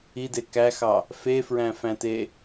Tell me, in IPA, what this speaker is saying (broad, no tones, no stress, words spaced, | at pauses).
ide kæxɑ | fefɹæ̃fæ̃te